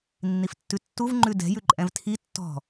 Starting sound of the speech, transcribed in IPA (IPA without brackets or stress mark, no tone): nː